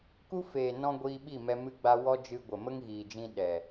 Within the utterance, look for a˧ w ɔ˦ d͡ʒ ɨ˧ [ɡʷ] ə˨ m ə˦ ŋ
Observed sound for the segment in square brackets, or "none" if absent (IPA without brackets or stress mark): ɡʷ